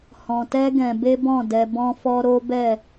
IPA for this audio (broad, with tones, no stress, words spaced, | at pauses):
hɔ̃˧tɛ˦ɡɛ̃˧ be˦bɔ̃˦˨dɛ˧ bɔ̃˦fɔ˦ɾo˦bɛ˦˨